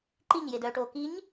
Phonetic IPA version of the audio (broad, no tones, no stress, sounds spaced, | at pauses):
ǃ i ɲ j e d œː ʈ oː k i ɲ